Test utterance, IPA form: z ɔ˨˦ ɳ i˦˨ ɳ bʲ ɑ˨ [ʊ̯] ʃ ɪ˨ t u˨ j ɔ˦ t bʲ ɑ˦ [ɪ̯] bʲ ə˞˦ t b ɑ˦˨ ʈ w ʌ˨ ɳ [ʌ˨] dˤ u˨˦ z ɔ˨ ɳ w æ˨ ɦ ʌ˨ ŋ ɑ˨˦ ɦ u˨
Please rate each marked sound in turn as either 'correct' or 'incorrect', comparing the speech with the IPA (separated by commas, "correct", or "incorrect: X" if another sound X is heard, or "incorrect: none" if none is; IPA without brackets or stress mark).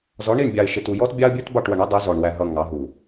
incorrect: ɪ̯, incorrect: ə̯, incorrect: ʌ˦